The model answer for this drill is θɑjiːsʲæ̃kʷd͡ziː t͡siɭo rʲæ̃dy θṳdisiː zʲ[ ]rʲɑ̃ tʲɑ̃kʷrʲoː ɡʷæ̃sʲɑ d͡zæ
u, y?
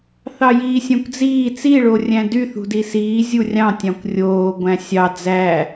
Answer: u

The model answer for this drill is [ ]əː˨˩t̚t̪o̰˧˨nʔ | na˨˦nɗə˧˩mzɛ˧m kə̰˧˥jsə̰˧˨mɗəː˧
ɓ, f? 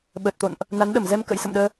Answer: ɓ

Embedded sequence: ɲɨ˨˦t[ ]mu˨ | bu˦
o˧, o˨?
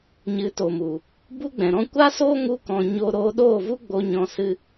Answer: o˨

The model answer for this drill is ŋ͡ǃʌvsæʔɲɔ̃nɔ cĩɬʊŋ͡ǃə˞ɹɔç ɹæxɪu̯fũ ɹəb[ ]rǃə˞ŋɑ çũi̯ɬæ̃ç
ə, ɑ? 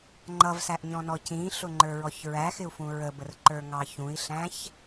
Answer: ə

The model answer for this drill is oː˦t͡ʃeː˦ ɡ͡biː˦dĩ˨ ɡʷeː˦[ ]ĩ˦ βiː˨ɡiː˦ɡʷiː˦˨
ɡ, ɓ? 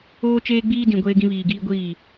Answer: ɡ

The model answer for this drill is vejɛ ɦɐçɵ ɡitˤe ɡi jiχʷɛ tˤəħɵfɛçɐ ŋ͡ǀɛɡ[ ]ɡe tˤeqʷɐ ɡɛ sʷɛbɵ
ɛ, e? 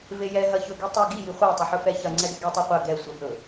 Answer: ɛ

